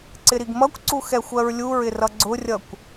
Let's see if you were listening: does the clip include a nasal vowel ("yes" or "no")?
no